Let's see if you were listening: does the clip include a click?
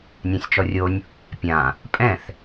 no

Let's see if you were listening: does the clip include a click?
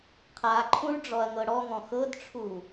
yes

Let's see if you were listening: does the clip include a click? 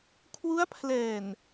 no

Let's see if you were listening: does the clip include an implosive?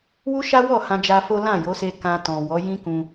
no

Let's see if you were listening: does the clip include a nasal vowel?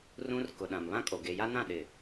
yes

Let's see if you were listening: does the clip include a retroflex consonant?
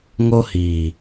no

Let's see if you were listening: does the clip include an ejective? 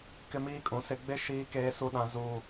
yes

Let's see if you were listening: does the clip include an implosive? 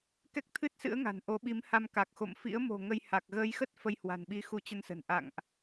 yes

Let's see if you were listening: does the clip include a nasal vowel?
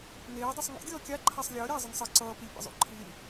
no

